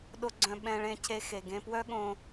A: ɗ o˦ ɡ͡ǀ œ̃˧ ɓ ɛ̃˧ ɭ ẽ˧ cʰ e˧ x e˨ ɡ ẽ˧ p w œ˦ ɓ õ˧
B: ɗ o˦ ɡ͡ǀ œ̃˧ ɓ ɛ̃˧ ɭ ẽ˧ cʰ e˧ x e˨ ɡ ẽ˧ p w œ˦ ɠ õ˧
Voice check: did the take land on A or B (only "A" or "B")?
B